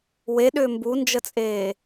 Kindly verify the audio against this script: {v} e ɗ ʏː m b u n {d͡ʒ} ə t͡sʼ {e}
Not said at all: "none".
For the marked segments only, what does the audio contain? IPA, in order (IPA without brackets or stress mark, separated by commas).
w, d͡ʒ, eː